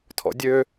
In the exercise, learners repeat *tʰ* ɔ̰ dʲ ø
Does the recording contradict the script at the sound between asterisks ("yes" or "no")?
no